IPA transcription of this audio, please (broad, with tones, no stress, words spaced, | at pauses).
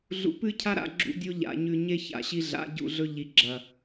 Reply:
ɮṵ˨pɨ˦cʰa˦ɾa̰˨ ɡ͡ǁṵ˦dʲo˦ ʎa̰˨ɲʉ˨ ɲe˦ ça̰˨ɕi˦ ɮa̰˨˦ ɟṵ˦˨ɮɵ˦ ʎi˨ɡ͡ǁɐ˨